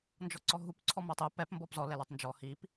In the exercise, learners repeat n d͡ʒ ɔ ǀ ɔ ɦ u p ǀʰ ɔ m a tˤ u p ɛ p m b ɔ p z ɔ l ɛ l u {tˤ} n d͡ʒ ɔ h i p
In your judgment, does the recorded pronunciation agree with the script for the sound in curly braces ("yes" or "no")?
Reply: yes